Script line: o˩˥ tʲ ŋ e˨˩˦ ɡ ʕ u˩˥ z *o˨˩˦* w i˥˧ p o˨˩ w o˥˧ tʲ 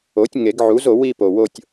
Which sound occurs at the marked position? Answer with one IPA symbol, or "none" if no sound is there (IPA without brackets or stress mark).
o˨˩˦